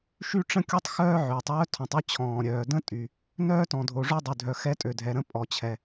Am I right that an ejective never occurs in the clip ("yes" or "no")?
no